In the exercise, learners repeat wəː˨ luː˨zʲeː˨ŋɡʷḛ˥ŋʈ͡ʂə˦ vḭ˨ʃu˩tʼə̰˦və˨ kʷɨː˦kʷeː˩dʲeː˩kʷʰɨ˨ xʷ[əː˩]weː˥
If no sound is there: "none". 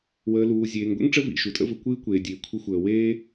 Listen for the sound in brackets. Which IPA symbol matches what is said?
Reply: əː˩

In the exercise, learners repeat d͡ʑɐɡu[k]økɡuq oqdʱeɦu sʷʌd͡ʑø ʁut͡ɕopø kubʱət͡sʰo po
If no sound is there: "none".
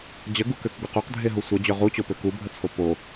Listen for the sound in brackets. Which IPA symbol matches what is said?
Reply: k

